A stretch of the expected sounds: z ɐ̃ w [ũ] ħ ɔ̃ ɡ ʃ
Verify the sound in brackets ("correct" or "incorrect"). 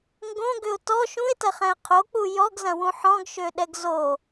correct